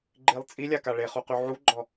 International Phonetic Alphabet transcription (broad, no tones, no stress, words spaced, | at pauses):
ɡ͡ǃilˠt͡sʼilʲaka ɭeχuqy ʕuɡ͡ǃɔ